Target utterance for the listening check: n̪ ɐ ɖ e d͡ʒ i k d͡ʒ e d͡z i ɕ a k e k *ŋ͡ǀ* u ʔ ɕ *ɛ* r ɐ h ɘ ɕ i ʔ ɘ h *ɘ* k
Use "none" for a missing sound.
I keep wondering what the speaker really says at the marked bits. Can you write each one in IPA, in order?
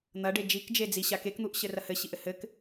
n̪, ɘ, ɘ

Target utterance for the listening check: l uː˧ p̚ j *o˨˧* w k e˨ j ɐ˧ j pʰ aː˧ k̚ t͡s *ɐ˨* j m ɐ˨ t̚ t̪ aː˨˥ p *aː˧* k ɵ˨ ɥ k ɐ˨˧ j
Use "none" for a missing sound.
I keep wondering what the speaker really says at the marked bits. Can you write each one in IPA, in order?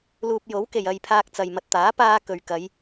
o˨˥, ɐ˨, aː˧

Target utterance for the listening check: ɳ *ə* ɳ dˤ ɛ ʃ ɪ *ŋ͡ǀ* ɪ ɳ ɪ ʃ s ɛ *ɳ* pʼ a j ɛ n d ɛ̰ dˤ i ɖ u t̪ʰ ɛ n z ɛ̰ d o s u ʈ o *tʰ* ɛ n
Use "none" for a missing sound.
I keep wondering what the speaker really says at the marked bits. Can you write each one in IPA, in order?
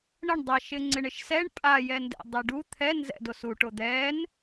ə, ŋ͡ǀ, ɳ, d̪

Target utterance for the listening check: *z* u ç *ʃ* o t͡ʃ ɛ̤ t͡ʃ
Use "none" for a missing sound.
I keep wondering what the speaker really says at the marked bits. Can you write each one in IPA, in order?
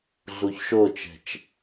ɮ, ʃ

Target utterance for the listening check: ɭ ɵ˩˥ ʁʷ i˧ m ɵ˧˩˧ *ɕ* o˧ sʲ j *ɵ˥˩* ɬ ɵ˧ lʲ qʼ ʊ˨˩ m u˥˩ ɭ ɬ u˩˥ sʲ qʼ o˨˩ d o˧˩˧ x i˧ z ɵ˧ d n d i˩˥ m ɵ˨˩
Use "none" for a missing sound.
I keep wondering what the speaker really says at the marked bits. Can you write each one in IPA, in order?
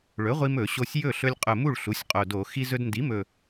ɕ, ɵ˥˩

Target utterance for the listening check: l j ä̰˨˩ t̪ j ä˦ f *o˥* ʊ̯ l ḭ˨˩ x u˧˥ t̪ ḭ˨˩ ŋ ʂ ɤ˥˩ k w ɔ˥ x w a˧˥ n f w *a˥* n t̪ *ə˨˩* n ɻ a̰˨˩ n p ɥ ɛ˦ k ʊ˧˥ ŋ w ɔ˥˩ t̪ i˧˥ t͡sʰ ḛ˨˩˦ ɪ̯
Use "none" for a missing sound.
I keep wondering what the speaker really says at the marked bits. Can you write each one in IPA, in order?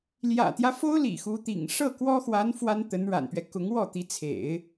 o˥, a˥, ə˧˥

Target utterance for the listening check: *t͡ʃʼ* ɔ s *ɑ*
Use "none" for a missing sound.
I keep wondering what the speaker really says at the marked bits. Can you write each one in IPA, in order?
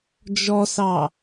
d͡ʒ, ɑ

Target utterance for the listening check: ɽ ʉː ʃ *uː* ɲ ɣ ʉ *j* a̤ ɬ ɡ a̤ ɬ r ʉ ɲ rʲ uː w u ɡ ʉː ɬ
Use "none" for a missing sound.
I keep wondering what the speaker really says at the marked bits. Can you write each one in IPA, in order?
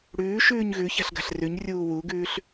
ʉː, ç

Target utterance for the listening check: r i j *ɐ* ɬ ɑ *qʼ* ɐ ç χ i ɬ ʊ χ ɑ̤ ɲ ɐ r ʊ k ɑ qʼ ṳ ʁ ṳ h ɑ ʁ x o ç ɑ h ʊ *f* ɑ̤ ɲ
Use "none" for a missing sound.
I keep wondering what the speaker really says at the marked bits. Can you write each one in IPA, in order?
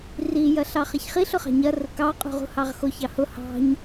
ɐ, χ, h

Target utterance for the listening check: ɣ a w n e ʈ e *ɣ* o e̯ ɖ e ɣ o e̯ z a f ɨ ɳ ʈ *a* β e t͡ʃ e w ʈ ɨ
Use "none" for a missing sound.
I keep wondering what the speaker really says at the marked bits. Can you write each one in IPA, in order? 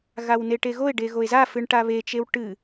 ɣ, a

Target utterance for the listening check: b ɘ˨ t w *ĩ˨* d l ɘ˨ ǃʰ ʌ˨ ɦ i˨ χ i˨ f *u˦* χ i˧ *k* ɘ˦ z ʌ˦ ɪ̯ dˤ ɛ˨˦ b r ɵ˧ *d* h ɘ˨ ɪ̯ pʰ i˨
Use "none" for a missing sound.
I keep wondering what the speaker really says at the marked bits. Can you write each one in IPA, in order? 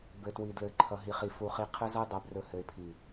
i˨, u˨, qʰ, none

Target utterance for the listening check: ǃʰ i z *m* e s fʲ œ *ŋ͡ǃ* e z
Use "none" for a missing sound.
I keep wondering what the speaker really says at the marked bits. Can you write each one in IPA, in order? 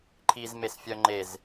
m, ŋ͡ǃ

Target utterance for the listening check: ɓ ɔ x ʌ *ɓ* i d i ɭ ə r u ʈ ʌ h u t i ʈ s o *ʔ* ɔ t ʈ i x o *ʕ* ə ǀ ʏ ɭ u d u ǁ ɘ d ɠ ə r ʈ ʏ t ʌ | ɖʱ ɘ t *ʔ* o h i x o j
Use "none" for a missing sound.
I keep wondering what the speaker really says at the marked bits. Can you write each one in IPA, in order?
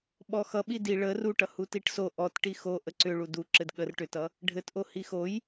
ɓ, ʔ, ʔ, ʔ

